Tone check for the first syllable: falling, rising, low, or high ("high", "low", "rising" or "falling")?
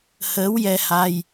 rising